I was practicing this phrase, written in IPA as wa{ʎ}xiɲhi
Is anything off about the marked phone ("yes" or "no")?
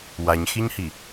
yes